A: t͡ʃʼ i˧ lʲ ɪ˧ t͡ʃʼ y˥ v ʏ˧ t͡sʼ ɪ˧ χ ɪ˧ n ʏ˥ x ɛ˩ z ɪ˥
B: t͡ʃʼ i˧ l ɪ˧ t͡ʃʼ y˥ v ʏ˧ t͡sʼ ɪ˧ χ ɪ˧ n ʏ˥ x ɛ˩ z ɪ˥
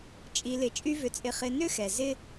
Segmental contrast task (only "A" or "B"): B